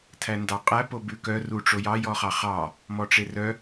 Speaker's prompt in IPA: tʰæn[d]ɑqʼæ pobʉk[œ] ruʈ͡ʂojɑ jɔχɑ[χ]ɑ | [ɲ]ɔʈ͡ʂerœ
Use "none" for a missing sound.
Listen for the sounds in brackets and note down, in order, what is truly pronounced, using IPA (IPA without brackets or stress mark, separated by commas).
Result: d, œ, χ, m